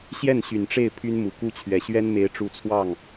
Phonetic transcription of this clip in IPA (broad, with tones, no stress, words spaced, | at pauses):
ɕjɛ˥˩n ɕy˨˩nʈ͡ʂe˥˩ɪ̯ pʰy˥nmu˨˩ku˥t͡ɕʰɥɛ˨˩ ɕɥɛ˥nme˧˥ɪ̯ʈ͡ʂu˧˥t͡sʰwɑ˥˩ŋ